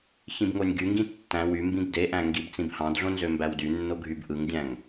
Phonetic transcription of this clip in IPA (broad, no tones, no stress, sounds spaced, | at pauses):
ç ĩ b ŋ o nʲ ɡ y ŋ ɡ ĩ tː æ̃ w y m b ĩ ɡ d e ʔ æ̃ ŋ ɡ i b t͡s ĩ b h ɑ̃ d ɮ õ n z ø m b æ w d y nː o ɡʱ y b ʔ ɯ ŋ dʲ æ̃ ŋ